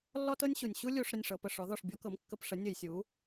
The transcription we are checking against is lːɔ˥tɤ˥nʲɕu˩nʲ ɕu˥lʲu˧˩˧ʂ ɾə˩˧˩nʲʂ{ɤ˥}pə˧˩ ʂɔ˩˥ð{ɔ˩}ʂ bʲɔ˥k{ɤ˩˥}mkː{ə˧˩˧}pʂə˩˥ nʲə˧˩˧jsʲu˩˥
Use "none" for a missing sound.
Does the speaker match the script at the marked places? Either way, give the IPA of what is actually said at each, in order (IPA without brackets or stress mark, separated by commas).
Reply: ɤ˩˧˩, ɔ˧˩, ɤ˩˥, ə˧˩˧